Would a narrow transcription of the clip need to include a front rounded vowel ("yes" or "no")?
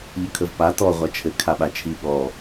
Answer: no